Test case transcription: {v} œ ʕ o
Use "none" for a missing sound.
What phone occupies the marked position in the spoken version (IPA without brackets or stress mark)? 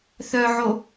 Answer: θ